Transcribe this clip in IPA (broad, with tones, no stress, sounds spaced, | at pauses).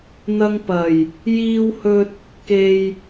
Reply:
n̪ ɐ˧ ŋ p ɐ˨˩ j | j iː˧ w h ɵ˧ t̚ | k e˧ j